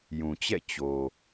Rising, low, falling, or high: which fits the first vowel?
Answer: low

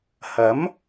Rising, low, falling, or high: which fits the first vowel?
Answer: rising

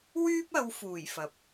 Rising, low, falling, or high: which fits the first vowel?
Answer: high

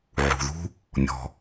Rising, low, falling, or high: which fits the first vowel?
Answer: low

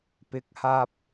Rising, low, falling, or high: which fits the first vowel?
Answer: rising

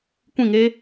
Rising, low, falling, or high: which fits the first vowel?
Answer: falling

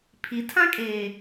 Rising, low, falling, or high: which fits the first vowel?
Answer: low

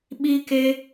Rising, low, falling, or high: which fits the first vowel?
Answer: high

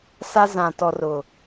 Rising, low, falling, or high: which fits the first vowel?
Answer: high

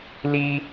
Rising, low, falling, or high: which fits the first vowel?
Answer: low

